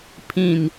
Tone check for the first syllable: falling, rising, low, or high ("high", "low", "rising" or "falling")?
low